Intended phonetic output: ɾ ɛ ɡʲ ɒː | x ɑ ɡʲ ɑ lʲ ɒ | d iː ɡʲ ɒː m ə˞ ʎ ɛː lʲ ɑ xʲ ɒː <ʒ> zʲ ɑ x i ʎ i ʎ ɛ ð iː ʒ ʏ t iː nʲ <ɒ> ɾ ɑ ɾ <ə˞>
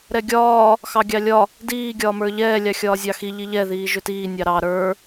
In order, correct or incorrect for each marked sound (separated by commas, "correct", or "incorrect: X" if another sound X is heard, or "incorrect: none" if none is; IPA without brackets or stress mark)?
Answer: incorrect: none, incorrect: ɑ, correct